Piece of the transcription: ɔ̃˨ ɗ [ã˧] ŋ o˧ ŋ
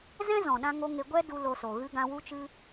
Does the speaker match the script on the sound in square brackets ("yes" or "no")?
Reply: yes